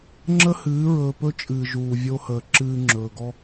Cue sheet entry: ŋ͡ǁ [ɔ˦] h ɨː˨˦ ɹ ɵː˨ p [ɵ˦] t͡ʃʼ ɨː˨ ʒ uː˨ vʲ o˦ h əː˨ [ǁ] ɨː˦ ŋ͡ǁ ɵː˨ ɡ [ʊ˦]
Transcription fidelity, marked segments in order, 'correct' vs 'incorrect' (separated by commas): incorrect, correct, correct, incorrect